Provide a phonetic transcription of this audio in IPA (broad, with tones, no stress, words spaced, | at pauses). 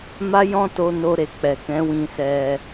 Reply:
ma˦ jɔ̃˦to˧no˧ ɾe˨k͡pɛ˨kɛ̃˨˦wĩ˧ sɛ˧